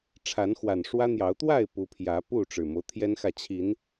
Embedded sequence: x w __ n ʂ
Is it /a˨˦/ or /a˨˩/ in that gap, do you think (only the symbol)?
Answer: a˨˩